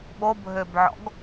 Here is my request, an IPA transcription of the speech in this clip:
ɓobʱøbʕɔ̰ɡ

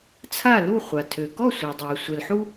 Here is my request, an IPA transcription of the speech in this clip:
t͡sʰa˥˨lu˥˨χʷa˩ tʰø˩kɔ˥˨ sʷa˩dˤɛ˩ʊ̯ sʷɛ˩lħu˦

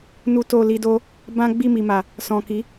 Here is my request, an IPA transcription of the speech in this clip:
nu˦to˦˨ li˧do˦ | bã˦ ɡ͡bi˦˨mi˨ma˨ | sɔ̃˨ki˨˦

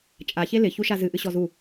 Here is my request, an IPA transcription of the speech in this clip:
t͡ʃʼaçe lɪçuʃa zɨʔɨɕɔ zu

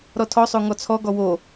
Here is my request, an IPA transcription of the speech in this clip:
ɾɔtʰɔsˤo ŋɔt͡sʰɔɡɔ wo

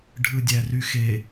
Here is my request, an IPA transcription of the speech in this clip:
ɖʱɯdʲæryxe

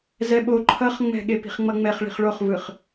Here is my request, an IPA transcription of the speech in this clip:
zɛɓo ǃʰʌχŋ͡mɛ̤ ɠepi̤χŋ͡mʌŋ͡mɛχ ɭi̤χɭoχvɯχ

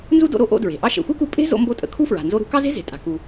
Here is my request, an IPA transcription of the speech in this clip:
nzu˥do̰˧ ɾo˥ ʔo̰˧ dɹe̤˩ ʔɑ˧ʃḛ˩xʷe˥ku˧ pʼe̤˥ zo̰˧mbo˧tʼə̰˩ kʰu˥fɹa̤˩ nzo˧ɾṳ˧ kɑ˥ze̤˥ ze̤˩ tʼa̤˩ ku˩

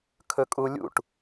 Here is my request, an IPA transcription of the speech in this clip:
kʰɵkʼulʲṵʈ

